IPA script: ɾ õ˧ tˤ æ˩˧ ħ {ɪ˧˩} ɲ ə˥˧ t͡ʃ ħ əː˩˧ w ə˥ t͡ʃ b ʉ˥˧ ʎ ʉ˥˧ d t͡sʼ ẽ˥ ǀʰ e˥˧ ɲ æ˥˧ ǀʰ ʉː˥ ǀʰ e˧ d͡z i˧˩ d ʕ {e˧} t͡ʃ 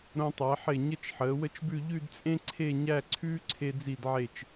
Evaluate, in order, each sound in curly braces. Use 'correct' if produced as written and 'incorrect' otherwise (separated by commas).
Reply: correct, incorrect